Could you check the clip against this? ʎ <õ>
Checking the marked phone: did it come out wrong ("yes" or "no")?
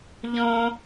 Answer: no